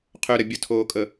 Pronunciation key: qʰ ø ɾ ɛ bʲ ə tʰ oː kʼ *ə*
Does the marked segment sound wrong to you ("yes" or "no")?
no